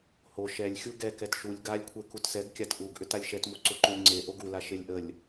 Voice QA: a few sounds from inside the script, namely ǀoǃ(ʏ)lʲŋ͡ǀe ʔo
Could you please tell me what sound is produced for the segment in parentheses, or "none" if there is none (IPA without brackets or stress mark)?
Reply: u